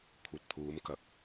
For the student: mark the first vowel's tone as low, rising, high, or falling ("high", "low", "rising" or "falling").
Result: low